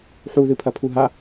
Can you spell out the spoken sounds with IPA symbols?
ħuðɨ pʰɐpʰuɦa

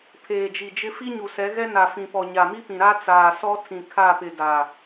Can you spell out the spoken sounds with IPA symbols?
pʰeː˨d͡ʒi˨d͡ʒɪ˦ fi˦ɲu˨sɛ˨˦ ɣɛ˦ na˨fĩ˨pɔ˨ ɲa˨mi˦pĩ˨ ɾa˦ t͡saː˨sɔ˦ tʰĩ˨kʰa˦˨pɪ˨ da˨

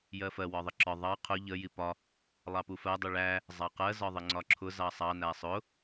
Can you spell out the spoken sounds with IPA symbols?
jɜfɜ wɒðˤəǁɒ ðˤɑ qʰʊ ʎə jipɒ | lˠɑpufɜ dˤuɭæ | zˤɑqɜ zɒðˤəŋ͡ǀɒǁʰʊ zɑsˤɑ næsˤʊ

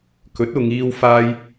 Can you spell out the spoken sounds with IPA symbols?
kɵ˨˥t̚ʊ˨˧ŋ iː˧w faː˥j

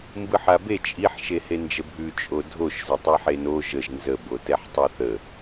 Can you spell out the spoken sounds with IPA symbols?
mbɯħabe t͡ʃʼiħ ʃehend͡ʒəbʱʉ t͡ʃʼodʱoʃ zətˤeħeno ʒəʒ nzə botɛħtˤɛθə

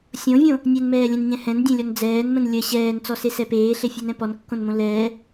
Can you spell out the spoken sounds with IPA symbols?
sʲõvʲõ | nʲɛnmɛːlʲɛ̃nɲɛ̃ hɛ̃ndʲẽlʲɔn d͡zɛːnmə̃n lʲə ɕɛːnt͡sɔsesɛ peːɬefʲenɛ̃ pɔnkːõnmõ lɛː

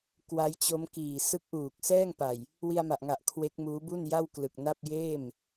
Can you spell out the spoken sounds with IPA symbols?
kwa˦˥jt͡ɕo˦˥mkiː˨˩ sɯ˦˥k̚ʔuː˨˩k̚sɛː˥˩ŋpa˨˩j | wi˧a̯ma˨˩ʔŋa˨˩ʔ kʰwe˦˥k̚muː˦˥bu˥˩n ja˥˩wklɯ˨˩k̚na˥˩p̚ jeː˥˩m

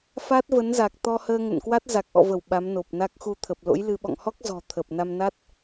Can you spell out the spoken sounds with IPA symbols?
fa˦˥t̚və˨˦nza˨˩k̚ t̪ɔ˧həː˧ŋə̰˧˨nkwa˦˥t̚ za˨˩k̚ʔɔ̰˧˨və˧˩w ɓa˨˦mno˨˩p̚na˦˥k̚ xu˧t̪ʰə˨˩p̚lo̰˧˥jlɨ˧ ɓɔ̰˧˨ŋhɔ˦˥k̚zɔ̤˨˩ t̪ʰə˨˩p̚ na˧mna˦˥t̚

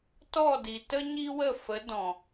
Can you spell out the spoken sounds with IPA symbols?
tɔ˦˨di˨tə˦ ɲi˦wə˦˨fə˨˦ dɔ̃˨

